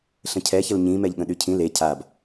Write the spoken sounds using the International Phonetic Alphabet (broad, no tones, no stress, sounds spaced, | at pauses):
ɬ ə̃ cʰ ɛ ç ə l ɲ ĩ m ɛ ʎ ɠ ə̃ ɗ y cʰ ĩ l e cʰ a b